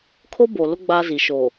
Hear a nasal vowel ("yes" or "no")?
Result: no